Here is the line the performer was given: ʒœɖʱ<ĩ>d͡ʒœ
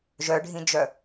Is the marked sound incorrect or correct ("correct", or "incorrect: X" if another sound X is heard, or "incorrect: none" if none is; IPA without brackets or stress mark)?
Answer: correct